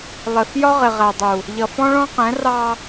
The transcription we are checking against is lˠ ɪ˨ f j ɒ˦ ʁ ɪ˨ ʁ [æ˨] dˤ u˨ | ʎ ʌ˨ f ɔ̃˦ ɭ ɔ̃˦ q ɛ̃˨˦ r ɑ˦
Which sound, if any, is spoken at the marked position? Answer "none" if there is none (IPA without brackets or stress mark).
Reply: æ˨